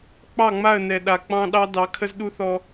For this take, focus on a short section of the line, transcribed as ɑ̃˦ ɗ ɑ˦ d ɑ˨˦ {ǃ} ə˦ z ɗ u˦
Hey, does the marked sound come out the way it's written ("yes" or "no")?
no